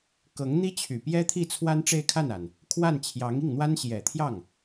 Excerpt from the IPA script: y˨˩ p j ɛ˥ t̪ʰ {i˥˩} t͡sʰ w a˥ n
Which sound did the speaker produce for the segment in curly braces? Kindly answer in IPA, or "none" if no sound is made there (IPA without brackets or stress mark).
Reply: i˥˩